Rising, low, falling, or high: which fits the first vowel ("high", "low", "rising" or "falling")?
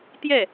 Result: falling